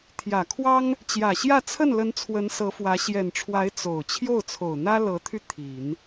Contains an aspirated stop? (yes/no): yes